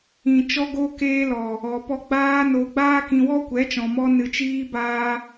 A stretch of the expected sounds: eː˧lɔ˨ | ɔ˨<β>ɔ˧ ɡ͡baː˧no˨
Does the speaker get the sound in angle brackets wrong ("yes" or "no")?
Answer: yes